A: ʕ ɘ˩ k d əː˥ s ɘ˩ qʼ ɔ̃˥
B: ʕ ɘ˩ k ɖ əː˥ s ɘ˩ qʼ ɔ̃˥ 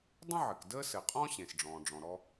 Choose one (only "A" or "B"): A